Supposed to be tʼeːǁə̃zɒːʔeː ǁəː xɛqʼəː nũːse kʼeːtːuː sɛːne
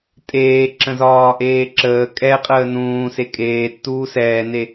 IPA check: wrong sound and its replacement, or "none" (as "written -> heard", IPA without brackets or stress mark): x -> kʼ